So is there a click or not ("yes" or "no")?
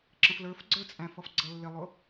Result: yes